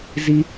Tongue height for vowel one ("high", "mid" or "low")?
high